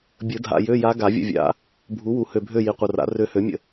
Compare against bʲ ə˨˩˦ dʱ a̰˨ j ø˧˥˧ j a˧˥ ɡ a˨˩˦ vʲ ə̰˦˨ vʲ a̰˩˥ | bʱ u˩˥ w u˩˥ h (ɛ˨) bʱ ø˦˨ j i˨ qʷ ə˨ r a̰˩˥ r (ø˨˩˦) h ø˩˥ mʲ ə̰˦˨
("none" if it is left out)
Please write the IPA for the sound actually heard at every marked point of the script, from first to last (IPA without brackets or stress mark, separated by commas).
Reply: ø˨, ø˧˥